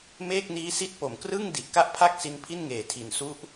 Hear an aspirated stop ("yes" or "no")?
yes